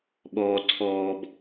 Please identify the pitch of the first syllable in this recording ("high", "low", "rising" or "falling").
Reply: low